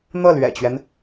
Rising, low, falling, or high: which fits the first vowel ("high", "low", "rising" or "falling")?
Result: falling